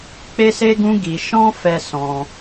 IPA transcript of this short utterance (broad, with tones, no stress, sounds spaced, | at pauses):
k͡p e˦ s e˦ ɡ ũ˦ ɡ i˧ ʃ ɔ̃˦ f ɛ˧ s ɔ̃˧